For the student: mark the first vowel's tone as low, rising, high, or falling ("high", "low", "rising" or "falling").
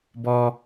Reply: high